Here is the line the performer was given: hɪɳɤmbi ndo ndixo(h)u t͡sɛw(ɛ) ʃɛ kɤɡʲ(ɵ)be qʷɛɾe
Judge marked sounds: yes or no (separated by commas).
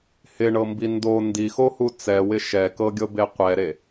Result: yes, no, no